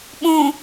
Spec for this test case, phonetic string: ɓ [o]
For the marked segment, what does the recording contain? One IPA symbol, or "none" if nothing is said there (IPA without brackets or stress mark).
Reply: õ